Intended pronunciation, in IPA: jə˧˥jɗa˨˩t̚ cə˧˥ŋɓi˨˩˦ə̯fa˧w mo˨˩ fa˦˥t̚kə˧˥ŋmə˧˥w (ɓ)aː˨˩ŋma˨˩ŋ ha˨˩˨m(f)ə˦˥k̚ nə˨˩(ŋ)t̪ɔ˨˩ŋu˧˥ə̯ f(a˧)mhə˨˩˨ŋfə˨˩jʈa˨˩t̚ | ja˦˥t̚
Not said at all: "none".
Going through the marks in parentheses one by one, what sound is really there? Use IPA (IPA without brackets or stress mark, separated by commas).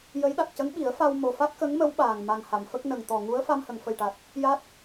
ɓ, f, ŋ, a˧